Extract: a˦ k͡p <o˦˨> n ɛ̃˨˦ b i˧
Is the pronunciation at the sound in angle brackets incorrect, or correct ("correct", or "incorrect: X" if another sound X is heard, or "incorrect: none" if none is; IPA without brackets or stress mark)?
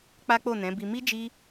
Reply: correct